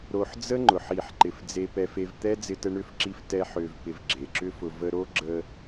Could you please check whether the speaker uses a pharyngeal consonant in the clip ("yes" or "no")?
yes